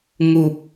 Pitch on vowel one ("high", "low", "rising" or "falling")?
low